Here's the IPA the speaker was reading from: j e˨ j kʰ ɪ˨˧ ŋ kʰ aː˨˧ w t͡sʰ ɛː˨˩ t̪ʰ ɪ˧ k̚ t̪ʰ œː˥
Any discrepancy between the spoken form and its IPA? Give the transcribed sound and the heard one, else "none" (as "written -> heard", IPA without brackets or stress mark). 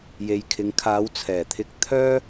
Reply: none